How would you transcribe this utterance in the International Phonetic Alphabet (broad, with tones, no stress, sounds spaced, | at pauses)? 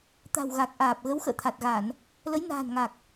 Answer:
t̪ a̤˨˩ w ɣ a˨˩ k̚ ʔ aː˨˩ p̚ ɣ ə˨˦ w x ə̰ː˧˨ t̪ʰ a˨˩ t̚ ɣ a˧˩˨ n | l ə˨˦ j n a̤ː˨˩ n ŋ a˨˩ k̚